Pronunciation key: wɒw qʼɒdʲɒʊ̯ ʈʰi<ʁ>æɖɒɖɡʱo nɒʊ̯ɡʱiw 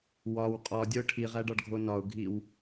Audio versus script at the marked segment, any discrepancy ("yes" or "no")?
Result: no